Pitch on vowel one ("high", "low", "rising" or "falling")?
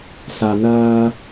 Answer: low